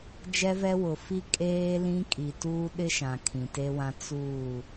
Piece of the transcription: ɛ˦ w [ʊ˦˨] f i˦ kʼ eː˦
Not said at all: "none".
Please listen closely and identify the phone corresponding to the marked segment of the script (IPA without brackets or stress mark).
ʊ˨